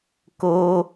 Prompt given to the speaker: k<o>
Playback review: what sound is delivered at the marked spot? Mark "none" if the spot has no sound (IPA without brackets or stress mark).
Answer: o